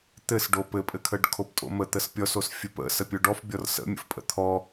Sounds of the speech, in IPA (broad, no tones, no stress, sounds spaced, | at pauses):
t̪ ɘ s ɖ o p ɘ pʼ ɘ kʰ ə ɖ kʰ o p tʼ o̰ m ə t̪ ə s pʲ ɔ s o s fʲ ɘ p ə̰ s ə pʲ o ɖ ɔ f bʲ ɔ r s ə̰ mʲ ə̰ f pʼ ə̰ t̪ʰ ɔ